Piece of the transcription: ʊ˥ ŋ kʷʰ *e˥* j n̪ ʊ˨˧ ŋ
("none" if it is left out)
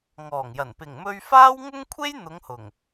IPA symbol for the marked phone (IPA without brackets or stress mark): e˥